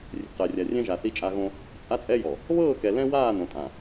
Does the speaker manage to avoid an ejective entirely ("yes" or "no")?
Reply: no